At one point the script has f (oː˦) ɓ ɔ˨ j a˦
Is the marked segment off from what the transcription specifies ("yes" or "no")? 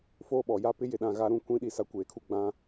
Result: no